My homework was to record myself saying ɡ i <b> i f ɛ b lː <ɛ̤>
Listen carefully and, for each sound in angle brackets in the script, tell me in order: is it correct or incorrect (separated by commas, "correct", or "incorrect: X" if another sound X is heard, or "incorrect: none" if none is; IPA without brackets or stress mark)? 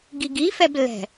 incorrect: ɡ, correct